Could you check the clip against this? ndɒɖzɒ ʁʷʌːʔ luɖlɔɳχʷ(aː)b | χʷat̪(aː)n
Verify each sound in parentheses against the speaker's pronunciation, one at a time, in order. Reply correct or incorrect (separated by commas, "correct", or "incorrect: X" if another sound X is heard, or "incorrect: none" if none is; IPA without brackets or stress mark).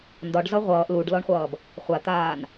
incorrect: ʌː, correct